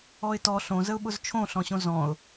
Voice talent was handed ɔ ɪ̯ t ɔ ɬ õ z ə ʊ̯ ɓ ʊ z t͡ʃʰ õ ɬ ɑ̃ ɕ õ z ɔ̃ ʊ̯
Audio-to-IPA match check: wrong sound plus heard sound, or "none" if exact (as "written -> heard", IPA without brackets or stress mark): ɑ̃ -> ɔ̃